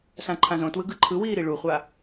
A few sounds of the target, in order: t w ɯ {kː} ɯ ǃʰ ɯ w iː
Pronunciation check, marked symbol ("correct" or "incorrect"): incorrect